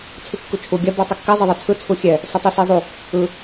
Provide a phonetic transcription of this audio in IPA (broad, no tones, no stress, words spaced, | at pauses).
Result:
t͡sʰɯkːut͡ʃʰu ɡʲa botˤɯkːɛ zˤiðˤɛt͡sʰɯ t͡sʰuxʲɛ | sɛtˤisizˤu | ɯ